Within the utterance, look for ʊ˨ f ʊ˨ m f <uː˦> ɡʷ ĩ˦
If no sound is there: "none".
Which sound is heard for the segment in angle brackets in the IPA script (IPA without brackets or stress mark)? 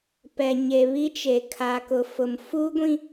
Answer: uː˦